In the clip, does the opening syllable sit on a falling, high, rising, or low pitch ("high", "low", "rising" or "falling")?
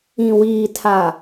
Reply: low